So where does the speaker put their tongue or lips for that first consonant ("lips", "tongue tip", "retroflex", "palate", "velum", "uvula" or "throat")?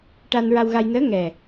retroflex